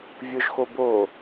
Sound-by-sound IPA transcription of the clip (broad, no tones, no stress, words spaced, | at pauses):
vʲʊʒ xobo